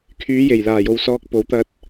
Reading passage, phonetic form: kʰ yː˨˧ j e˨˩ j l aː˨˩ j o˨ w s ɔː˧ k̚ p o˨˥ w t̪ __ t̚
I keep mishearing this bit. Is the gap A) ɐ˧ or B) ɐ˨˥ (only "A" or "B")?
A